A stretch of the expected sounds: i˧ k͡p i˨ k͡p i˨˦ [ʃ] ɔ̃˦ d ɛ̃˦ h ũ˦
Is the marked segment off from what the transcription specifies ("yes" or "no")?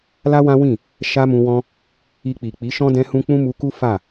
no